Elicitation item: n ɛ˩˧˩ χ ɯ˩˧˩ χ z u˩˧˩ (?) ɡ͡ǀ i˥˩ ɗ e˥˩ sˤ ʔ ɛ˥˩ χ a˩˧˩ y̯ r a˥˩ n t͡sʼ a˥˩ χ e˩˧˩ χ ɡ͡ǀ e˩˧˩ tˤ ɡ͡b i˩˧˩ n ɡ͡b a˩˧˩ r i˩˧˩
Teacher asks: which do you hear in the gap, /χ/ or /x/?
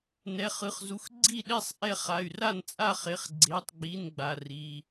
x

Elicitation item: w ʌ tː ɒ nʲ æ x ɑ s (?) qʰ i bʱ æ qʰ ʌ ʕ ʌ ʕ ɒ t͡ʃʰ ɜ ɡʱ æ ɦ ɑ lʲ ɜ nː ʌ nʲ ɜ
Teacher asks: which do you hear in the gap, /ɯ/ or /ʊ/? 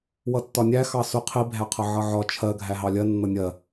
ʊ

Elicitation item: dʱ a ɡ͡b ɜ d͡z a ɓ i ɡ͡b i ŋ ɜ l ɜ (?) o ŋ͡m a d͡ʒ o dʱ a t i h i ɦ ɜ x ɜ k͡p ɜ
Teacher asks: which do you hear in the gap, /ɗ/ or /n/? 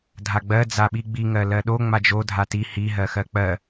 ɗ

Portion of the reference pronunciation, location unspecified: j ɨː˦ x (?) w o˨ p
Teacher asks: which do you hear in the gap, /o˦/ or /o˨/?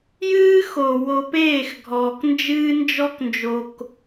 o˨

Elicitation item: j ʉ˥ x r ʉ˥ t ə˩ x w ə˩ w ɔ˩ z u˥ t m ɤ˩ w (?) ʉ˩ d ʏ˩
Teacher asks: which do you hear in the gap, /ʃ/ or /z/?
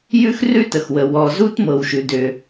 ʃ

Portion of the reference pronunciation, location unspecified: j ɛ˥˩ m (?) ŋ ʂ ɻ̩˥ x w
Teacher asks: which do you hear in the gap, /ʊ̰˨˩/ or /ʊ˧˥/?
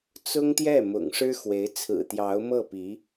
ʊ̰˨˩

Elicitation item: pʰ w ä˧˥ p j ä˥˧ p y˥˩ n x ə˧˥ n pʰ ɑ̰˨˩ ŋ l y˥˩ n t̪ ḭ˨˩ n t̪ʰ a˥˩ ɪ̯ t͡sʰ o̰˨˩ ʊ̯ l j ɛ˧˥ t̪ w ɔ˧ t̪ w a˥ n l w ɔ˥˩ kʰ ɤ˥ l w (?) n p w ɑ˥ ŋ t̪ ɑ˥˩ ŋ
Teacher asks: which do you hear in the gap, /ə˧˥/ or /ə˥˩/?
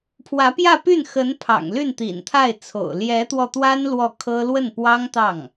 ə˥˩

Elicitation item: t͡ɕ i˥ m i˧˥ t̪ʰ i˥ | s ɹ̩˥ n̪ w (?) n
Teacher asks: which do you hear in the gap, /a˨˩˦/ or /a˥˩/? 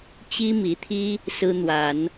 a˨˩˦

